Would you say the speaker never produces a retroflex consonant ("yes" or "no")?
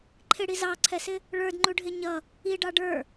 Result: no